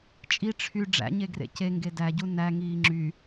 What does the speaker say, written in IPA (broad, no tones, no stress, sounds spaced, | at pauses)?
t͡ʃʼ i ʈ͡ʂʰ y ɖ͡ʐ æ̰ ɲ e ɡ r ḛ c e ŋ ɡ e d æ ɟ u n æ ŋ iː ŋ͡ǁ y